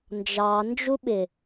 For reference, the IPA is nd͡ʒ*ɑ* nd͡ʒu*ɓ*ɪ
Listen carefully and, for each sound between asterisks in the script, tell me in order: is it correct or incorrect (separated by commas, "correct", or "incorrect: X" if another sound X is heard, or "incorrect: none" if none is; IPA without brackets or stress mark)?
correct, correct